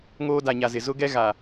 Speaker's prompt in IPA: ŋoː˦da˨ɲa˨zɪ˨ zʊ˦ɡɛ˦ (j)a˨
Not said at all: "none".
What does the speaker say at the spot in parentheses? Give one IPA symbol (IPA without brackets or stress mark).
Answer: ɣ